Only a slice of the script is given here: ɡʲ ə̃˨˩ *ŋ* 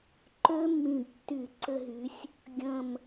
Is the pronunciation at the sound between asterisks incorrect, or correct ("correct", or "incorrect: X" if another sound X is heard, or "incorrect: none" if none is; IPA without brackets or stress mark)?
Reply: incorrect: m